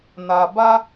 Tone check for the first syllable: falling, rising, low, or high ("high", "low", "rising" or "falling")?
low